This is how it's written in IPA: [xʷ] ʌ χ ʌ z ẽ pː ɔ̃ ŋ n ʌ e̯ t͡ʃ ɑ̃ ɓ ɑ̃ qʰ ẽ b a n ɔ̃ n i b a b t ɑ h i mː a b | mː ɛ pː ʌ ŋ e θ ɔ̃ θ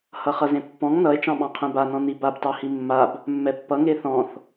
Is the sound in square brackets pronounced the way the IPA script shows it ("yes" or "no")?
no